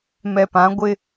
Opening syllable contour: low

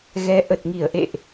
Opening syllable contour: rising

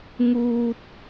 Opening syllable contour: high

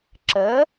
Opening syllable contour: rising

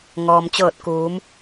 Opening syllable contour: low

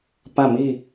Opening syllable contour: falling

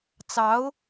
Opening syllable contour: rising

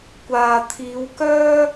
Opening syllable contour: low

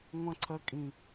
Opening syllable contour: high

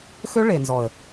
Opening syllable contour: high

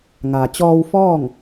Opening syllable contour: low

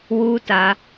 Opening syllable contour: high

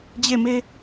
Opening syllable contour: falling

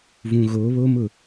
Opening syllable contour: low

